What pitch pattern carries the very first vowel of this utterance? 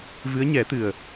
rising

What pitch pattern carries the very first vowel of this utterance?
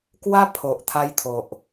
high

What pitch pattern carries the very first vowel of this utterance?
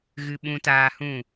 high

